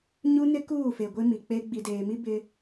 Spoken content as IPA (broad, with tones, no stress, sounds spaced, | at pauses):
ɲ u˦ n ɪ˦ k uː˦˨ f e˨ ɡʷ e˦ m i˨ k͡p e˦ ɡ͡b i˨ d eː˨ m i˦ b ɪ˦